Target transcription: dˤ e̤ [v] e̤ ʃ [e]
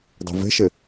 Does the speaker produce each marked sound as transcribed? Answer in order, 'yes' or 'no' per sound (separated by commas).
yes, yes